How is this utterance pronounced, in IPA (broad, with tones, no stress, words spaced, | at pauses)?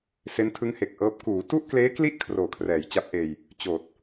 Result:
se˦˥ntʰɯ˦˥ŋhe˨˩k̚ʔɤː˦˥p̚ kuː˩˦ tu˥˩ʔkleː˦˥kli˥˩ʔ kʰroː˨˩kʰrɛː˩˦jt͡ɕa˦˥p̚ʔeː˧j | t͡ɕoː˨˩t̚